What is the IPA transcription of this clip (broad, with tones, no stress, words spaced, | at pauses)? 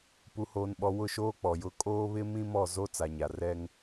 pu˨hoː˨nɓɔ˨ wʊ˦˨ʃoː˦k͡pɔ˨jʊ˦˨ kʼoː˦ βɪ˦mĩ˦mɔ˦˨ zo˦ t͡sa˨ɲa˨ rɛ˦ŋ